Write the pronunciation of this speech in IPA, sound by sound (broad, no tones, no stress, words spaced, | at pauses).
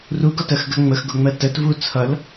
ruɡɒtɜxɡɜ ŋ͡məxɡʊŋ͡mɜ tətvu t͡sʰʌl